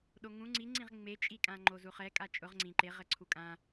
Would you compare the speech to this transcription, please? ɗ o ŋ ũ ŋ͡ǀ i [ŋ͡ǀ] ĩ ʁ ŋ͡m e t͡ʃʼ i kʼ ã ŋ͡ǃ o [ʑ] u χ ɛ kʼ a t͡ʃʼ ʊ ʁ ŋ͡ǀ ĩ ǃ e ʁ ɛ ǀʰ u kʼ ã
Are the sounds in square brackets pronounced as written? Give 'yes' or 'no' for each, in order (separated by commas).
yes, no